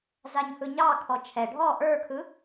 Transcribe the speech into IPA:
z a ɲ h ɯ ɲ ɑ kʰ ɔ t͡ʃʰ ɛ ɖʱ ɔ ʔ ə˞ kʰ ɯ

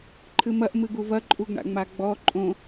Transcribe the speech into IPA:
ǃʰ ɨ m ɐ ʔ m ɨ ɡ u v ɐ ǃʼ u ɡ ɳ a̰ ŋ͡m a ɡ͡b ɔ ǃʼ õ

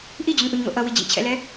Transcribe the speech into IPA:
ʔ i d͡ʑ o n ʔ u ɲ ŋ o̰ ʔ ʌ w i d͡ʑ ḭ t͡ɕʰ ɛ̰ l ɛ

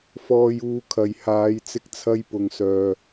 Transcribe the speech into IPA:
f ɔː˧ j uː˧ kʰ ɐ˨ j h aː˨˧ j t͡s ɪ˧ k̚ t͡sʰ ɐ˧ j p ʊ˨ ŋ s œː˨

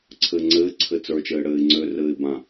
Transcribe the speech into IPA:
ǀʰ ɘː ŋ͡ǀ ɘː ǀʰ ɘ t͡s ə˞ t͡ʃ ɘː ɽ ɘː ɪ̯ ŋ͡ǀ ø r ɘː ɪ̯ b ã

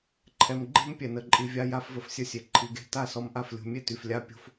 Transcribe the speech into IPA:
ǃʰ ɛ˨ m ɡ͡ǃ e̤˦ m pʲ ɛ˨ n ə˨ ǃʼ i˨ vʲ a˧ j a˧ f v ə˧ f sʲ ə˧ sʲ e˨ ǃʰ i˨ ɡ e̤˧ t a˦˨ s ɔ˧ m ʔ a˦˨ f lʲ o̤˧ mʲ e˦ t y˨ f lʲ a˦ pʲ o̤˦ f

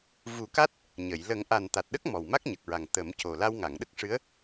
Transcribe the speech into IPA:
v u˨˩˦ k a˦˥ t̚ | ɲ ə˨˩˨ j l ə˨˩˦ ŋ ʔ a˨˩ n t̪ a˨˩ t̚ ɗ ə˦˥ k̚ m ɔ˨˩ w m a˦˥ k̚ ɲ ə˨˩ k̚ ɹ a˨˩ ŋ t̪ ə˨˩˦ m c o˨˩ l a˧ w ŋ a˨˩˨ ŋ ɗ ə˦˥ k̚ ʂ ɨ˧˥ ə̯

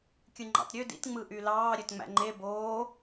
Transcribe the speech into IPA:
kʲ ɯ ŋ͡ǃ ɑ̰ t ɾʲ ø d ḭ t ŋ͡m ɯ ʔ y l ɑː ɾʲ ø t ŋ͡m æ̰ ŋ͡ǃ e b oː

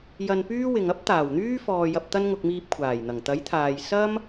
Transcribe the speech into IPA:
j ɐ˧ n p yː˥ w ɪ˨ ŋ ɐ˥ p̚ t̪ aː˨˩ w n̪ yː˥ f ɔː˨ j ɐ˨ p̚ t̪ ɐ˥ n ŋ ʊ˧ k̚ m iː˧ p̚ kʷʰ aː˨˩ j n̪ ɐ˨˩ ŋ t̪ ɐ˨˥ j t̪ʰ aː˨ j s ɐ˥ m

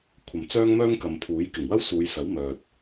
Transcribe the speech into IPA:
kʷʰ ɐ˨˩ m t͡s œː˥ ŋ m œː˥ ŋ k ɐ˨ m pʰ uː˨˥ j k ɪ˨˩ ŋ w ɐ˥ w s uː˨˧ j s ɐ˨˥ w m œː˨ t̚

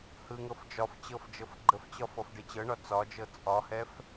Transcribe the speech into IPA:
h ɯ ŋ ɤ f d͡ʒ ɒ f t͡ɕ ɤ f d͡ʒ ɤ f ɡ͡ǃ ə f t͡ɕ ɒ f ɔ f ɖ e t͡ɕ ɤ ɳ ɒ t͡s ɒ d͡ʒ ɤ t͡sʼ ɒ h ɛ f

